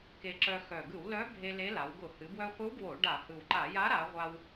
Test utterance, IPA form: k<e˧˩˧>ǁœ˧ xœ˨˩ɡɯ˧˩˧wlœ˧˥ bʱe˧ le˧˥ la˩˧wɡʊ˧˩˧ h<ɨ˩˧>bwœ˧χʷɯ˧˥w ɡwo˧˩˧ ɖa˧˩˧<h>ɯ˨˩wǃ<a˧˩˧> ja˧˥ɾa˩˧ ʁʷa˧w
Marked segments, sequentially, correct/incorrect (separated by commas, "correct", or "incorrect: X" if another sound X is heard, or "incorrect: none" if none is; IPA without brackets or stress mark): incorrect: e˧, correct, correct, correct